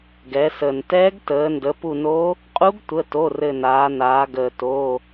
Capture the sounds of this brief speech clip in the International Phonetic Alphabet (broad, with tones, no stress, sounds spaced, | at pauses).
ɡ ɛ˩˧ s əː˩ n t ɛː˧˥ ɡ t əː˩˧ n d ə˩˧ p u˧˩ n o˧˥ | qʼ u˧˥ ɡ tʷ ə˩˧˩ t o˩˧˩ r ɘ˧˩ n aː˩˧ n aː˩˧ ɡ əː˩ t o˩˧˩